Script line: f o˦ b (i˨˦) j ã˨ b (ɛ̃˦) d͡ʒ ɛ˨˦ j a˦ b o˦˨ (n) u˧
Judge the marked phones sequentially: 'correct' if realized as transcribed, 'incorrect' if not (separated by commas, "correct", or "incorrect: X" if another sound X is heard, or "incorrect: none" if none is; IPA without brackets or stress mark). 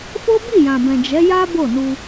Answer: incorrect: i˦˨, incorrect: ɛ̃˨, correct